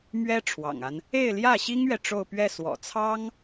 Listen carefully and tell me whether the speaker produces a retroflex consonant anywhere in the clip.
yes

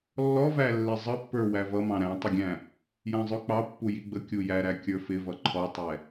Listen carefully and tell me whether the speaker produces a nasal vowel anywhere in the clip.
yes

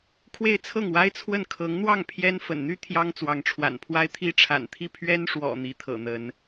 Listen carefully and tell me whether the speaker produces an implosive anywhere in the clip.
no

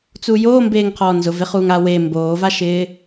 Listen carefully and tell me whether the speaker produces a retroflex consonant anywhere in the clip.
no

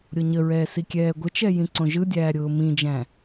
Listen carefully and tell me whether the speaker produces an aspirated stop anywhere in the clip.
no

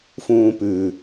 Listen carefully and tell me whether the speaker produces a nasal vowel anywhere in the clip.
yes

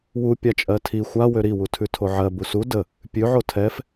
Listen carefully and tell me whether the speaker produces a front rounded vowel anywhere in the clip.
yes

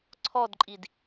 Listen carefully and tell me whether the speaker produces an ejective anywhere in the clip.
yes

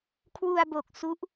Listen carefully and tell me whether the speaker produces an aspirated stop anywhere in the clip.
yes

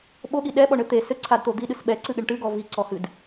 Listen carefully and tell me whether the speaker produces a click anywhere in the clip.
yes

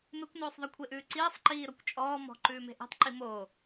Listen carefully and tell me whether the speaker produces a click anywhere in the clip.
yes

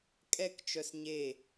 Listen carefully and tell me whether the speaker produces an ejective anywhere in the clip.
yes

